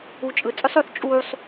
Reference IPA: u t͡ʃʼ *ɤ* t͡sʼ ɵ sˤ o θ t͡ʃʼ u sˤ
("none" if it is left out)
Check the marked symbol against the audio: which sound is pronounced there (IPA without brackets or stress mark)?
ɯ